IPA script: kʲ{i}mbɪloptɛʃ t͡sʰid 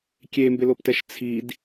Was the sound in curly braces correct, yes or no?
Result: no